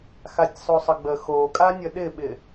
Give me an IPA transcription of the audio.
x a tʲ sˤ o sˤ ə ɡ͡b ə x o kʼ a nʲ ə ɗ ɪ ɓ ɪ

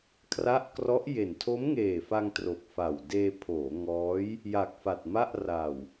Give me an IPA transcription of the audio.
kʰ r a˦˥ ʔ k r ɔ˦˥ ʔ j e˨˩ n tʰ o˦˥ m ŋ eː˨˩ f a˧ ŋ t r o˨˩ k̚ f a˨˩ w d eː˧ pʰ oː˩˦ ŋ ɔː˦˥ j | j a˨˩ k̚ f a˨˩ t̚ m a˥˩ ʔ r a˨˩ w

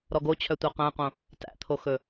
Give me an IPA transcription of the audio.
ɾ ɔ ɡ o t͡ɕʰ œ tʷ œ q æ̃ q õ | t æ̰ t̪ʰ o x ɵ

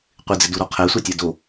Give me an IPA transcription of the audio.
qʷ ɪ d͡z ɪ d u ɾ ɔ qʰ ɛ sʷ ɛ tʲ ɛ d o

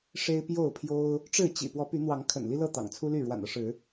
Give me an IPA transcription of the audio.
ʂ e˦ ɪ̯ p j o˥˨ ʊ̯ pʰ j o˦ ʊ̯ | ʈ͡ʂ ɻ̩˥˨ t͡ɕ ḭ˨˩ p w ɔ˨˦ p y˨˦ n̪ w ɑ˨˦ ŋ kʰ ə̰˨˩ n l i˦ l ɤ˥˨ t̪ ɑ̰˨˩ ŋ t͡sʰ u˦ l y˥˨ ɻ w a̰˨˩ n ɤ˦ ʂ ɻ̩˨˦

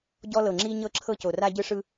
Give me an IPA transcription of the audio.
ɟ ɔ˧ l ɤ˨ ŋ͡ǁ i˧ ɲ ɤ˧ ǁʰ ɤ˧ c o˨ r a˧ ɟ ɯ˧ ʂ ɯ˧

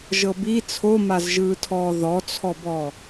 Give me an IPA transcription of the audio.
ʒ ɤ b i t͡sʰ o m a z ʒ ɯː tʰ ɔː ð ɔ t͡sʰ ɔ b ɔ

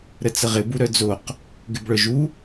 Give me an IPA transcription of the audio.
ɾ ə t͡s ə ʁ ɪ b u ɾ œ d͡z o q | ɡ ɪ b ɭ œ ʒ u

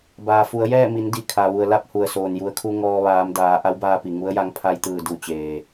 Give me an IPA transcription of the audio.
b aː˩ f u˩˧ ə̯ j ɛː˥˨ m i˩˧ n d i˧˩ kʰ a˩ ʋ u˩ ə̯ l a˥˨ p̚ h u˩ ə̯ s oː˩ n j u˩˧ ə̯ kʰ u˧ ŋ ɔː˧ ʋ aː˩˧ m d aː˩˧ ʔ a˧˥ w b aː˧ p i˩ ŋ u˧˥ ə̯ j a˧˥ ŋ pʰ a˧ j t̪ ɯː˧˩ d u˧˩ t͡ɕ eː˩

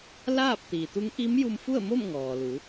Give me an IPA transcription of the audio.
l aː˥˨ p̚ t̪ iː˩ t̪ u˧˥ ŋ ʔ i˧˥ m j u˧ m f u˥˨ ə̯ m o˥˨ m ŋ ɔː˩ l u˩˧

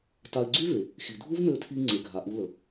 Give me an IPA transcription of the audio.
t a˧ ɪ̯ ɡ͡ǀ y˦ v e˨ | x i˨ dʱ u˦ v m ø˧ tʰ i˧ ŋ͡ǀ e˨ ɡʱ a˨ ʔ u˧ l ə˨

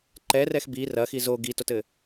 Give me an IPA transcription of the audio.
ǃ ɛ r ɛ x b i r ɐ x i z o ɡ i t o t ɘ

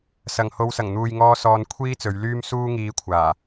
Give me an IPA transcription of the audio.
s ɐ˨ ŋ h o˧ w s ɐ˨˩ ŋ n̪ uː˨ j ŋ ɔː˧ s ɔː˧ n kʷʰ iː˥ t͡s ɵ˨˧ ɥ l yː˥ m s uː˥ ŋ iː˧ kʷʰ aː˨˩

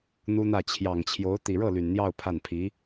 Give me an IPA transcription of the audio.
n̪ u˥ n̪ ä˥˩ t͡ɕʰ j ɑ˨˩ ŋ t͡ɕʰ j o˧˥ ʊ̯ t̪ i˨˩ ɻ ɤ˥˩ l y˨˩ n n̪ j ɑ˥˧ ʊ̯ pʰ a˥˩ n pʰ i˧˥

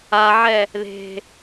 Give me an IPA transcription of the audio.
a ʕ ɛ | ð e̤

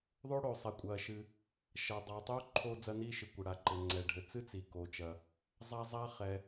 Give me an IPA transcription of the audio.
ðˤ oː˥ ɽ oː˩ sˤ e˩ kʷʼ ɐː˩ ʃ ɨ˩ | ʃ ɐː˩ dˤ aː˩ tˤ oː˥ ǃʰ oː˥ d͡z ɐ˥ n iː˥ ʃ ɨ˩ kʷ ɘ˩ ɽ a˩ ǃ ɘ˩ ŋ͡ǀ ɛ˩ ɖʱ ɘ˩ t͡s ɨ˥ t͡s i˩ k o˩ t͡ʃ ɐ˩ | zˤ a˥ zˤ a˥ χ ɛ˩

